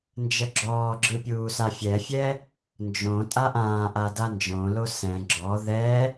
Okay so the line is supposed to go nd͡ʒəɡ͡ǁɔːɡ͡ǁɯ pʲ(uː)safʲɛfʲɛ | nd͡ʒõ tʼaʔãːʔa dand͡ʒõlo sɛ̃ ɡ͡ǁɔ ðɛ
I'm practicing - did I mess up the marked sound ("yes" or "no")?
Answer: no